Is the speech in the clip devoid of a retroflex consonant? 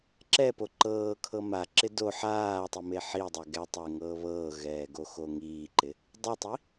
yes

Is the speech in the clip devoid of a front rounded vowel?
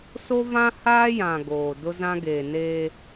yes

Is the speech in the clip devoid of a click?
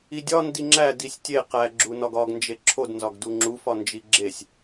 no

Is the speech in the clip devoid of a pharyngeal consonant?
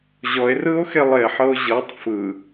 no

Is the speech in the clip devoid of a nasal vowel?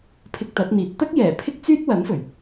yes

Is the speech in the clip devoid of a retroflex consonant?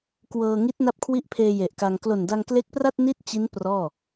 yes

